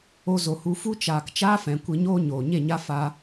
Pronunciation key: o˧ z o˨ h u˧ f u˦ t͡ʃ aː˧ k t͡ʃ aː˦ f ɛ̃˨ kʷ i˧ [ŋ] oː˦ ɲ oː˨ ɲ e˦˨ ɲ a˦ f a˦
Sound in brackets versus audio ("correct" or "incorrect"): incorrect